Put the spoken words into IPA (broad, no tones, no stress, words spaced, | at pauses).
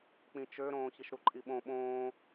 k͡pĩt͡ʃøɾõː çiʃɾuǃʼiɓõ ɓõː